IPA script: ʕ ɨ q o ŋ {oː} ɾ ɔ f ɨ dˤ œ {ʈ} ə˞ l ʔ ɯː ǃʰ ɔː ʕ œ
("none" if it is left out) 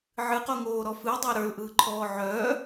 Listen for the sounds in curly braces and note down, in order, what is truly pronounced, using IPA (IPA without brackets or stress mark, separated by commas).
oː, ɾ